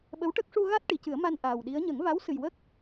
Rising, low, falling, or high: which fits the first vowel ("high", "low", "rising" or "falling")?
rising